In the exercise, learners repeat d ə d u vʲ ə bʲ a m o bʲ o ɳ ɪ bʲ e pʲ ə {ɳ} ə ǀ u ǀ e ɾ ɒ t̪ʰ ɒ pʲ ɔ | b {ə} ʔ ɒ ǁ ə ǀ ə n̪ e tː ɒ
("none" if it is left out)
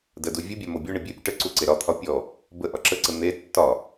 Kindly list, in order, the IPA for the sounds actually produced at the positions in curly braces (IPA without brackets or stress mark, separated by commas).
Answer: ʈ, ə